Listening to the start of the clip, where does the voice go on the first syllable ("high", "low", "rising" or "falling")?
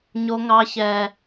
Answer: high